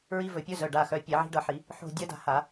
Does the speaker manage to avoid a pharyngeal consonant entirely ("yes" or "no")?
no